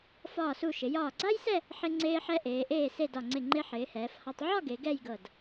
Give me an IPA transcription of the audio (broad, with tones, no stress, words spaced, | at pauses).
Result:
fɒː˧˩su˧˩ʃɪ˩˧jɒː˧˩ ɡ͡ǀa˥jsɛ˥˧ | ħɪ˧ ŋ͡ǀeː˧ħɛ˧ʔeː˩˧ ʔeː˧˩se˧˩ dɒ˧˩ŋ͡ǀɪ˧˩ŋ͡ǃe˧ ħɪː˩˧hɛː˩˧fhɒ˧tˤ ʕɒ˥˧ɡe˩˧ ɡɛ˥˧jɡɤ˧˩d